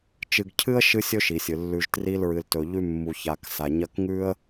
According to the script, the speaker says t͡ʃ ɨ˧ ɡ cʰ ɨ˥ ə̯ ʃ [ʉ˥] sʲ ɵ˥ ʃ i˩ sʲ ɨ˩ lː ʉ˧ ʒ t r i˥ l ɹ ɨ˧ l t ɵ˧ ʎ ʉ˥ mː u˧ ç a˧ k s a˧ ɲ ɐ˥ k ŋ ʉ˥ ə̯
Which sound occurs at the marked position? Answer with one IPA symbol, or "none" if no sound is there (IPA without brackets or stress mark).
ɨ˥